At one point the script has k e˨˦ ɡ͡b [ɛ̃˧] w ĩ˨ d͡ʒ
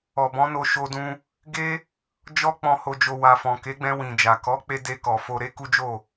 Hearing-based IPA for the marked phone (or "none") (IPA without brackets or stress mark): ɛ̃˧